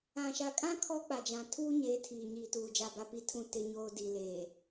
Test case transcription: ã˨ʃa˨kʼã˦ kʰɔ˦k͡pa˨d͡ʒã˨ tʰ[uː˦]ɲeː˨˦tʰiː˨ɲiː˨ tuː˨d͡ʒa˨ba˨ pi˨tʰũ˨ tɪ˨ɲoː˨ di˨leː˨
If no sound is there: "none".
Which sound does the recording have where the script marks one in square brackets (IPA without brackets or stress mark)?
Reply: uː˦